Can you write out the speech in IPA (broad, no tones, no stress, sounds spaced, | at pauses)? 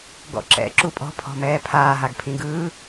ɡ ɔ̰ ǁ ɛ̰ ǁ u pʼ ɔ̤ pʰ ɔ̤ m ɛː pʰ aː ɦ a ɡ pʰ ĩ ɡ ɯː